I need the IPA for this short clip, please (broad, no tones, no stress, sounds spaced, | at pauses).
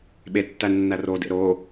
ɓ e tː æ nː æ r o d ḛ ɾ o